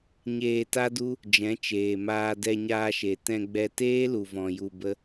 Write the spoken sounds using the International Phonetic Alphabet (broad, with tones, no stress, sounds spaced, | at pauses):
ɲ eː˧ t a˦ d u˦ | d͡ʒ ɛ̃˨˦ t͡ʃ eː˨ m aː˧ d ɛ˧ ɲ aː˧ ʃ e˨ t ɛ̃˧ ɡ͡b ɛ˧ t eː˦ l u˨ v ɔ̃˨ j u˧ b ə˦